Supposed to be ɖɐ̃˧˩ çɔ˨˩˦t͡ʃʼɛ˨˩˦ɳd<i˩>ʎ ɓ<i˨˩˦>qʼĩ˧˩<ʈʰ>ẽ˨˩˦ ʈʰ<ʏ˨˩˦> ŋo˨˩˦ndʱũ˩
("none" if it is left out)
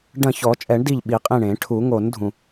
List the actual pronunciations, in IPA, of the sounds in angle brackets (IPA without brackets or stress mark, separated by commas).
i˧˩, i˨˩˦, ɳ, u˨˩˦